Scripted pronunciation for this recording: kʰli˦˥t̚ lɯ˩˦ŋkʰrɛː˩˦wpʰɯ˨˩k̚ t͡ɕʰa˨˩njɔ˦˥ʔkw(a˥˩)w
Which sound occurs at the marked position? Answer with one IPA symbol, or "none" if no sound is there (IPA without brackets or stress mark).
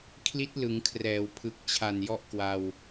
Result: a˧